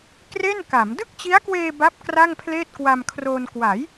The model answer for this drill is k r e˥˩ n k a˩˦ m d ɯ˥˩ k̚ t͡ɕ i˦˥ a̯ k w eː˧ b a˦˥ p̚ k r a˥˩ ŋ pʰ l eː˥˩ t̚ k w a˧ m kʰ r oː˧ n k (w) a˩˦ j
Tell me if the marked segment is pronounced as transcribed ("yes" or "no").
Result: yes